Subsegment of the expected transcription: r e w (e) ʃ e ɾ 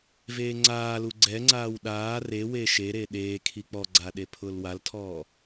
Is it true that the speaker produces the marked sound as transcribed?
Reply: yes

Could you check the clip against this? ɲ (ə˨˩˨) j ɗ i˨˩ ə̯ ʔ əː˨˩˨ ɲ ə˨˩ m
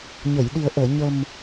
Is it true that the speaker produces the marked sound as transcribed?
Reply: yes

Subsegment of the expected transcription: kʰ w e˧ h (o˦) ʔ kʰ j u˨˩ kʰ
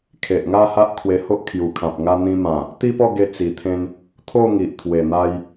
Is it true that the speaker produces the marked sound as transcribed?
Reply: yes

